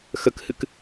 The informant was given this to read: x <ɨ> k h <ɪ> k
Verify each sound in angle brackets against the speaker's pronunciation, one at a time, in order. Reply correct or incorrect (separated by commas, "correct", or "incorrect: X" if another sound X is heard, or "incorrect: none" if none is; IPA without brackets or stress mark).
incorrect: ə, incorrect: ɨ